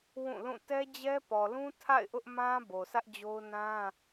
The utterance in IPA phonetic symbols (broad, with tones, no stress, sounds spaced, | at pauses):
w ũ˦˨ l ũ˦˨ t ɛ˦ d͡ʑ ɛ˦ p ɔ˨ l ũ˦ tʰ a̰˦˨ ɪ̯ ʔ ʊ˦ ʔ m ã˦ b o˨ s ä˦ ʔ d͡ʑ o˦ ʊ̯ n ã˦